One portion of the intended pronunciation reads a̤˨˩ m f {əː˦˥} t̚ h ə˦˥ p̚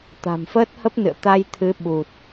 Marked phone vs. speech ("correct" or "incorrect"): correct